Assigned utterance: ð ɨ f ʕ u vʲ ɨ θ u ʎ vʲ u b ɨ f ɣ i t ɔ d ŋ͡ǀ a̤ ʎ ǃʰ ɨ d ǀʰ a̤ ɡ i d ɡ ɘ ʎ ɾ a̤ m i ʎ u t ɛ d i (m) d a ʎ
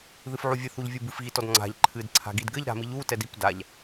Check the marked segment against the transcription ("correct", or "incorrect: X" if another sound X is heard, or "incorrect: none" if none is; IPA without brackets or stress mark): incorrect: p